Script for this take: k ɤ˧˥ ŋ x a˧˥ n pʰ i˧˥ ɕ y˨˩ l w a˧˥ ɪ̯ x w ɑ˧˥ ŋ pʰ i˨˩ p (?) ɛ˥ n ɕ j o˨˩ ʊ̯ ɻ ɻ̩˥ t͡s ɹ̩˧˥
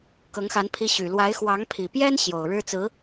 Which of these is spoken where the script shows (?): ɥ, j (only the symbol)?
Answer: j